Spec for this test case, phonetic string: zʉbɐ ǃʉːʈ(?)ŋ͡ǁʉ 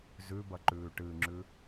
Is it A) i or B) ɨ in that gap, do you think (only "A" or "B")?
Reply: B